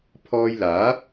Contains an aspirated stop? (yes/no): yes